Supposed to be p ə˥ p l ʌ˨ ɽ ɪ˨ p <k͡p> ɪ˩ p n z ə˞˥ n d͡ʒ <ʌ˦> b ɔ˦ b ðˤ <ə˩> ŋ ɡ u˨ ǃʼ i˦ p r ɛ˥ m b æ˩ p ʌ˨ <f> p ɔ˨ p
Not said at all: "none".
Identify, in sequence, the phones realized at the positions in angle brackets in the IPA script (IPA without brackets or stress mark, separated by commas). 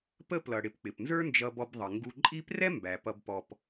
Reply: k͡p, ʌ˦, ə˩, b